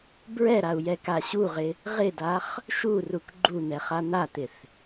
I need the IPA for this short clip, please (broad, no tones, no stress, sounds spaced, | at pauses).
b ɹ ɛ ɾ a u̯ j ɛ k a ɕ u ʁ ɪ | ʁ ɪ d a χ | ʃ u r u k ɡ͡ǃ u n̪ ɛ χ a n̪ a t̪ ɪ θ